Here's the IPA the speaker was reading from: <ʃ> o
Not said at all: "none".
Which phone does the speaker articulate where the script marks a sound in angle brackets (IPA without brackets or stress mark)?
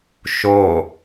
ʃ